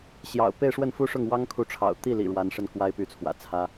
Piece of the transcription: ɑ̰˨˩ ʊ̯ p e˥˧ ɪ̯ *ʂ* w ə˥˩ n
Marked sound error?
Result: no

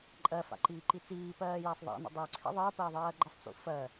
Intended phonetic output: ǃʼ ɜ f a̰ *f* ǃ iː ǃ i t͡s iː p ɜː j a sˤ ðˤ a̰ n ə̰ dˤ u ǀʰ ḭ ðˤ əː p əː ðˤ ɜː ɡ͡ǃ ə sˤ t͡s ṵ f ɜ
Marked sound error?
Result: yes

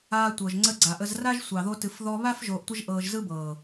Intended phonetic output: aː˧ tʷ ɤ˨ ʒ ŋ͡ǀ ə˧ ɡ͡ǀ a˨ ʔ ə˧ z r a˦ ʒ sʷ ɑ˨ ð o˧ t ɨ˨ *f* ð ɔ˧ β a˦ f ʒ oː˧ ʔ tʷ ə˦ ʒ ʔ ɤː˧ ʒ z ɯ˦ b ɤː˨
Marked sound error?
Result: no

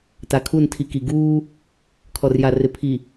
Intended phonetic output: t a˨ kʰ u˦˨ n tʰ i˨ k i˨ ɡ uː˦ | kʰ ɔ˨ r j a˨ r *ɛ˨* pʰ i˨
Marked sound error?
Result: yes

